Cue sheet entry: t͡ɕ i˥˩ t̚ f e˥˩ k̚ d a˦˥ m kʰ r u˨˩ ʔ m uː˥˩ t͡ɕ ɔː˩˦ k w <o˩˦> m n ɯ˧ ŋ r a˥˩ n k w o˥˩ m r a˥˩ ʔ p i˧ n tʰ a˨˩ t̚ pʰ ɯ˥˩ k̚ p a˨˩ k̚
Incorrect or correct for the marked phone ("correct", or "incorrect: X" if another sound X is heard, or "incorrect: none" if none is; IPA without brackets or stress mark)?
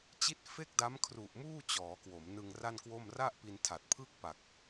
correct